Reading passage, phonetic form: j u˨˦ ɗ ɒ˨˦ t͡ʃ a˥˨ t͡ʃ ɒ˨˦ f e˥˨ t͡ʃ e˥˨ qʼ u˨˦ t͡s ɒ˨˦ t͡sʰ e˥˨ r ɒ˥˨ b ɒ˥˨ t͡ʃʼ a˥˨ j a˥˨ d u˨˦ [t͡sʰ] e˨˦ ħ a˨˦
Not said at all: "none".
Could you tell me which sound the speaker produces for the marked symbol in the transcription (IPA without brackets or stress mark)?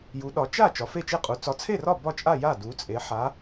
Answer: t͡sʼ